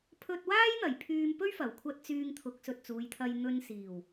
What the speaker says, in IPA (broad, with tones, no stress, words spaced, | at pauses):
pʰɵ˧t̚waː˥jn̪ɐ˨˩j pʰyː˧mpɵ˥ɥfɐ˨˩wkʷʰɐ˧t̚ t͡syː˧ŋ t̪ʰʊ˨˥k̚sɵ˨t̚t͡suː˨˧jt̪ʰɐ˧j n̪ɵ˧nsiː˨˩w